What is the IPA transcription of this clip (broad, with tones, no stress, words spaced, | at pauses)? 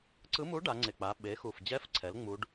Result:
ǀɯ˧˥mu˧˥ ɖa˩˧ŋ͡ǀe˨˩k͡pa˩˧ ɓe˩˧xu˨˩fd͡ʑɛ˧˥fǀʰɛ˩˧l ŋ͡mu˧˥ɖ